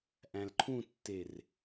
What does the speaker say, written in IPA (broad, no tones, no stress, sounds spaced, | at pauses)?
ʔ æ̃ l ǃʰ ũ tː e r